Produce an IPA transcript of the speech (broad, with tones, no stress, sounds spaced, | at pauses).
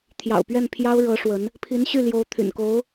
t̪ʰ j ɑ̰˨˩ ʊ̯ p ɥ ɛ˥˩ n pʰ j ɑ˥ ʊ̯ ɻ ɤ˧˥ ʂ w ə˧˥ n | pʰ i˧˥ n ɕ y˥˩ l j o˧˥ ʊ̯ t̪ʰ y̰˨˩ n k o˧˥ ʊ̯